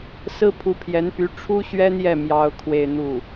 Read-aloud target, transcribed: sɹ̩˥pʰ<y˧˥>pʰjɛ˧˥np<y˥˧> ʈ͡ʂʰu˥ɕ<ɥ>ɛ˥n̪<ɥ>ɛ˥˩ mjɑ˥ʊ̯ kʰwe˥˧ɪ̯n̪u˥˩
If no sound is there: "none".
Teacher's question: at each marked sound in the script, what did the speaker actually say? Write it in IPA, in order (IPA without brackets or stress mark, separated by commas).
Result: u˧˥, y˧˥, ɥ, j